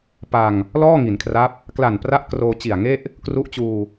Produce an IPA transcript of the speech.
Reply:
p a˧ ŋ | l ɔː˥˩ ŋ i˩˦ n kʰ r a˦˥ p̚ | k l a˨˩ n p r a˦˥ ʔ k r oː˧ t͡ɕ i˨˩ a̯ ŋ e˥˩ ʔ | k r u˦˥ ʔ t͡ɕ uː˧

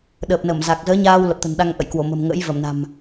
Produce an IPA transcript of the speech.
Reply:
ɗ əː˨˩ p̚ n ə˧˩ m z a˨˩ k̚ z əː˨˦ ɲ aː˧ w l ə˨˩ p̚ t̪ ə̤˨˩ n ɗ a˧ ŋ ʔ ə̰˧˨ j k w o˧˩ m ə̤˨˩ m ŋ ə̰˧˥ j v ə˧˩ m n a̤˨˩ m

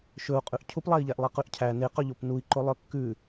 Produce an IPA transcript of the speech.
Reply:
ʃ ɵ u̯ qʼ ʉ ʔ cʰ u p lˠ æ i̯ ʎ æ ʔ lˠ i q ʉ ʔ cʰ æ n e q ø ʎ o p n u i̯ ǃ o lˠ œ kː ʉ

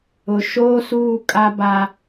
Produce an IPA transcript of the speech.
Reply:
ʊ˨ ʃ oː˦ s uː˦˨ kʼ a˦ b a˦

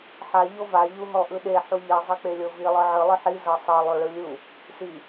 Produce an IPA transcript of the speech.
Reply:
ħ a ʎ o v a ʎ u ɦ ɔ ʔ ɯ ɗ e ħ u ʎ i zˤ e k͡p e lʲ ɤ v i lˠ ɯ ʕ ɯ lˠ ɯ ħ i z ɤ sˤ ɤ lˠ o ɭ ɯ lʲ u | s i

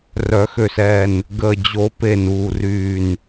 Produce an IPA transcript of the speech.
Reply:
r œ˨˩˦ x ø˨˩ s ɛː˨˩ n | ɡ əː˨˩ d͡ʑ o˨˩˦ p e˨˩ n uː˨˩ r yː˨˩ n

